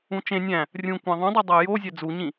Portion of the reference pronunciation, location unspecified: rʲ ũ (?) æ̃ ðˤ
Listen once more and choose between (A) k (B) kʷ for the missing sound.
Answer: B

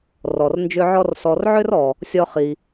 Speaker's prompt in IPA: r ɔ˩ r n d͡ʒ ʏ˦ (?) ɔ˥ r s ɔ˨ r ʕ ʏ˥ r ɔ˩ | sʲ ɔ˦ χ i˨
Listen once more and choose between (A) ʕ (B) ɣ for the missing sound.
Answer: A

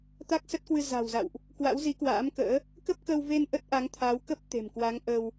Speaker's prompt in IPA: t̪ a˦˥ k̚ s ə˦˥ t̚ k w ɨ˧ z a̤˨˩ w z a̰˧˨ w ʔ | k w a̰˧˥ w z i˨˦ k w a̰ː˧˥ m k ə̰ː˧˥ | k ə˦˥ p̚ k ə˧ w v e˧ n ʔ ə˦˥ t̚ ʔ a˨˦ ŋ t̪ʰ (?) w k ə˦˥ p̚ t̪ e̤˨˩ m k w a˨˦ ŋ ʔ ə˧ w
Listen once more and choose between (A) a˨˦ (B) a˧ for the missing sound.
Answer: A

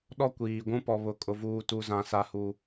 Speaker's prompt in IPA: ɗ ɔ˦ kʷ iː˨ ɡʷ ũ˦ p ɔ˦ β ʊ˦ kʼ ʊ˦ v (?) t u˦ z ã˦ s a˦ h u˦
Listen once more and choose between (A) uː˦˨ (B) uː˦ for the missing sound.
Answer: B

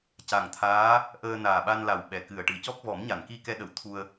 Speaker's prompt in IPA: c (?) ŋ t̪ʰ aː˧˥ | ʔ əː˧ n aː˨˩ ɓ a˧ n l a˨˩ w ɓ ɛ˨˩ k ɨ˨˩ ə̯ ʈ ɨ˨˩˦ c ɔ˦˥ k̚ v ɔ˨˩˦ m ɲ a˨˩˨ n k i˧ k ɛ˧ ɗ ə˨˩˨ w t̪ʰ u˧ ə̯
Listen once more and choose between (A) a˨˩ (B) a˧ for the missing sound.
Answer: A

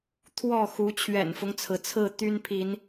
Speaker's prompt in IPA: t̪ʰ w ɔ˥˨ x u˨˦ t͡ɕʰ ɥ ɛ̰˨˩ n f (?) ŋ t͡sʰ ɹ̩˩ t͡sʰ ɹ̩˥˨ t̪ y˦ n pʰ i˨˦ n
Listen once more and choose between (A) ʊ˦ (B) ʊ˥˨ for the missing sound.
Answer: A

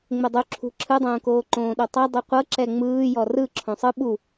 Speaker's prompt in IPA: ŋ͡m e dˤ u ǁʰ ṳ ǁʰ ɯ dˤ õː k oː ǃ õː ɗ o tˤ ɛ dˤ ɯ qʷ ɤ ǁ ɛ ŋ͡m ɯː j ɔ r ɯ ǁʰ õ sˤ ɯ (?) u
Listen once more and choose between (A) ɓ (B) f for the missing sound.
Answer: A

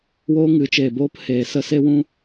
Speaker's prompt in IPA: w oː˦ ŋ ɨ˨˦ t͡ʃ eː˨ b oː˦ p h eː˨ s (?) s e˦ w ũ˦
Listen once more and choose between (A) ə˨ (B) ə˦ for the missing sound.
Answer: B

